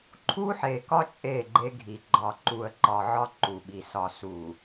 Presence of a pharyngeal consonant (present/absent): present